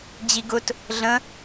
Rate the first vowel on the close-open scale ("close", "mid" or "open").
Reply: close